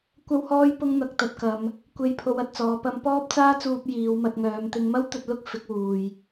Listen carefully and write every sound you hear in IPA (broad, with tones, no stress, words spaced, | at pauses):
kʷɐ˥whɔː˥j pʊ˥ŋn̪ɐ˧k̚ t̪ɐ˧t̚kɐ˨˧m | kʷe˧j pʰo˧wɐ˧t̚t͡sɔː˨˧ pɐ˧mpɔː˥p̚t͡saː˥t͡suː˧p̚ jiː˨˧wmɐ˧t̚ŋœː˨˧m t̪ɪ˥ŋ mɐ˥wt̪ɵ˧t̚lʊ˥k̚ fɪ˨˥k̚wuː˨j